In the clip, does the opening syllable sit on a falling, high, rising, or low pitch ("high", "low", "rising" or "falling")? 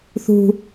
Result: low